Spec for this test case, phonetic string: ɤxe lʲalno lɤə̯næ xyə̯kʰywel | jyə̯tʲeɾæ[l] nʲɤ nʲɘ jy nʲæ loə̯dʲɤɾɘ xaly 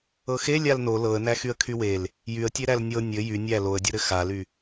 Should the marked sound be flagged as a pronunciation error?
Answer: no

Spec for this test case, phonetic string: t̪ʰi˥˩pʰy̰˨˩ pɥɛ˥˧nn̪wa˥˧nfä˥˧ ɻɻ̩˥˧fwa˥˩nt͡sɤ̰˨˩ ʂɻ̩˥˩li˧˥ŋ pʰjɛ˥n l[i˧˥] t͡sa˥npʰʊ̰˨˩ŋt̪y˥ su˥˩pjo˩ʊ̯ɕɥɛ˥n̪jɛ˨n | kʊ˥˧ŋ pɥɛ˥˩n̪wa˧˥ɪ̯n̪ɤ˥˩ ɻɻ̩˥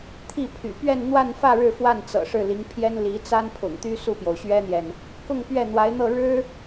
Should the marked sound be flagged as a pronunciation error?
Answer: no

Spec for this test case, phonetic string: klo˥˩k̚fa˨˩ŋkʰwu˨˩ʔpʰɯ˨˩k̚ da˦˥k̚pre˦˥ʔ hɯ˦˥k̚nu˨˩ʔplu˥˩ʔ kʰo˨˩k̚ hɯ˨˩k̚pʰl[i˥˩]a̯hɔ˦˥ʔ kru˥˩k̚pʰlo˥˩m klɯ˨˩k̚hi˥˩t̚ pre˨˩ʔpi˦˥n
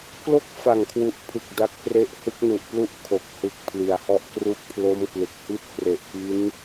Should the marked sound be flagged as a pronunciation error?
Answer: yes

